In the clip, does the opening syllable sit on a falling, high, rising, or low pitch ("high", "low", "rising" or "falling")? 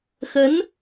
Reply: rising